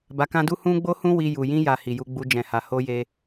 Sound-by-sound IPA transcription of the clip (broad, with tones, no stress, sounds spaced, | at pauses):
b a˧ k ã˦ d u˦ h ũ˦ ɡ͡b o˦ h ũ˦ w i˧ j u˨ j ĩ˧ j a˨ h i˨ j u˧ ɡ͡b u˧ d͡ʒ ɛ̃˨ h a˨ h o˧ j e˧